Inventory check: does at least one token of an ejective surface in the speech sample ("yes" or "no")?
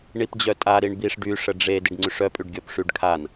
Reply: yes